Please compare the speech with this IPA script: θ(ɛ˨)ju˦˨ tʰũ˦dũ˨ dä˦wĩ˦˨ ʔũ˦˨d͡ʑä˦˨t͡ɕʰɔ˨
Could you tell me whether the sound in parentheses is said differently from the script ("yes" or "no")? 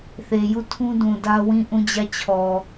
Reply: yes